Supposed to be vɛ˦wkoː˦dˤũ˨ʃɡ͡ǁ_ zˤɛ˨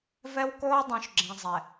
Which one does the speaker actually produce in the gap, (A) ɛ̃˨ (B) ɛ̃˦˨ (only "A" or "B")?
A